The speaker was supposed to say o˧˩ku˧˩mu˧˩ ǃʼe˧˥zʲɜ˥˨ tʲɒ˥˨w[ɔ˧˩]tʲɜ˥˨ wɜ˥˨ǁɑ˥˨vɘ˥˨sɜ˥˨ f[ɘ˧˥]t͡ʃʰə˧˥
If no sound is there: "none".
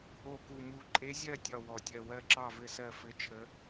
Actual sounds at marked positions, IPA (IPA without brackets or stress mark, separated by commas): ɔ˧˩, ɘ˧˥